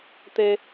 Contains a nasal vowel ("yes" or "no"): no